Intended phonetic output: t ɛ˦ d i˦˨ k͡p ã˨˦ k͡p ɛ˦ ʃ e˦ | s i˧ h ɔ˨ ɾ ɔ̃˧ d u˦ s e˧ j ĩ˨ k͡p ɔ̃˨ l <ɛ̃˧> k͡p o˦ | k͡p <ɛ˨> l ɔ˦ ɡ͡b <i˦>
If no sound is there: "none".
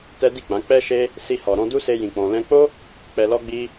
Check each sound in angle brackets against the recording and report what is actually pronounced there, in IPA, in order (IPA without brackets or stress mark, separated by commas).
ɛ̃˧, ɛ˧, i˦